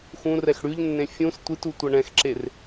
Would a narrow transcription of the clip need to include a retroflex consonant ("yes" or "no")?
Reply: yes